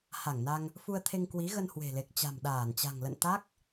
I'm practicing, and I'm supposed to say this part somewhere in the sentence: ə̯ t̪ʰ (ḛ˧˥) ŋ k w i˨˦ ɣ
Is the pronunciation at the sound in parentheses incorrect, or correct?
incorrect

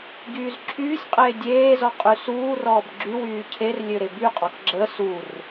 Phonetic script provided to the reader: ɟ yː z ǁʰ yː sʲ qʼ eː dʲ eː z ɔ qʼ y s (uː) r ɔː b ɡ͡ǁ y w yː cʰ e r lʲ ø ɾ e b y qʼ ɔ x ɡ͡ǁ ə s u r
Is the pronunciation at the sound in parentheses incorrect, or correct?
correct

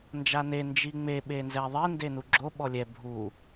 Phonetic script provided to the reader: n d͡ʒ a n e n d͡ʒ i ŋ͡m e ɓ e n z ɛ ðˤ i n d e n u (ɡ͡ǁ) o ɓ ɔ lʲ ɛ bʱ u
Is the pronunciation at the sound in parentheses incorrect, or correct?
correct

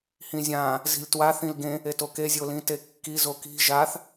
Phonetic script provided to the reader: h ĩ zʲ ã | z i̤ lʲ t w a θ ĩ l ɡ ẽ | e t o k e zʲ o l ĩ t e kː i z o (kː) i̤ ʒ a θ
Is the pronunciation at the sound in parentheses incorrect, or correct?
incorrect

